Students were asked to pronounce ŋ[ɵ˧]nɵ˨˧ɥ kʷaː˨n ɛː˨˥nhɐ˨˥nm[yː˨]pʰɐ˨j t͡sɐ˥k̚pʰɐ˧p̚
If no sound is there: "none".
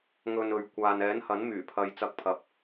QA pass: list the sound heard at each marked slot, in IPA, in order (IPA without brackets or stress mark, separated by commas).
ɵ˧, yː˨˩